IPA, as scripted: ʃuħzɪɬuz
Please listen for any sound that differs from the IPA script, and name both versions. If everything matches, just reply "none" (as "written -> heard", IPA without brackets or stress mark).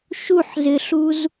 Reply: none